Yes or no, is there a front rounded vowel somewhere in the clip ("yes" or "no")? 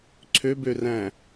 yes